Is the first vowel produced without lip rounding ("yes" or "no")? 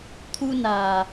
no